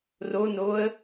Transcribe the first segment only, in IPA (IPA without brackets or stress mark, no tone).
r